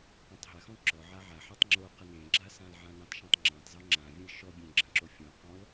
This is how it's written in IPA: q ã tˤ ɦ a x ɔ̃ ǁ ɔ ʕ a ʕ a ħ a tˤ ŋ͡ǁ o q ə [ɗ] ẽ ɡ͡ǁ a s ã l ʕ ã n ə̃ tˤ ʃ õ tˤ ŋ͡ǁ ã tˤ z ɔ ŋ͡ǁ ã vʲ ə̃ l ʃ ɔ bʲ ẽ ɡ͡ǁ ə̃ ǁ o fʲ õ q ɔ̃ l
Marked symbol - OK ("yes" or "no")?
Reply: no